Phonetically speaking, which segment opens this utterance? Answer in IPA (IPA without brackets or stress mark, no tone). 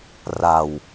r